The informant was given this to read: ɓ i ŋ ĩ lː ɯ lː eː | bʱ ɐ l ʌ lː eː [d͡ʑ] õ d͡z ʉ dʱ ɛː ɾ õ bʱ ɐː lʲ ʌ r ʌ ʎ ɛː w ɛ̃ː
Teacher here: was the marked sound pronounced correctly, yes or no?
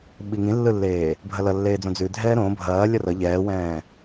no